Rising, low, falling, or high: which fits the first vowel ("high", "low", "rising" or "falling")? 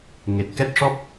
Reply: low